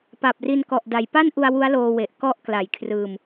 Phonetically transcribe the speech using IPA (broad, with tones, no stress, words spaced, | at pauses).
pa˨˩p̚ri˧nkɔ˨˩ʔ da˩˦jpa˥˩nʔu˧a̯ wu˦˥a̯loː˧we˨˩ʔ kɔ˦˥ʔ kla˨˩jkʰrɯː˧m